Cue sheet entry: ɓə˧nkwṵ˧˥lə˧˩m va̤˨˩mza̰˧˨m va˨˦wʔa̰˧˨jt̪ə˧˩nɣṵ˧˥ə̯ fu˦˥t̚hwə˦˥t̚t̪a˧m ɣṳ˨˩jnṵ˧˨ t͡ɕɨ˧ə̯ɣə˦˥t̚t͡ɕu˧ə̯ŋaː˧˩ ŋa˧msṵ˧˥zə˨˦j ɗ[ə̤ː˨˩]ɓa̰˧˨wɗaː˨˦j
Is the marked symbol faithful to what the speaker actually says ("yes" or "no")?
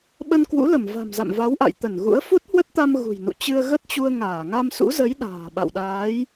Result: no